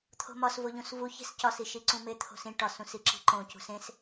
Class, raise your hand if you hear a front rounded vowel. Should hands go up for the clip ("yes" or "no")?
no